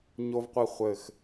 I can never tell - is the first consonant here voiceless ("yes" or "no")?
no